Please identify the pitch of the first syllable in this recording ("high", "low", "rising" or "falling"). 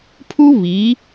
high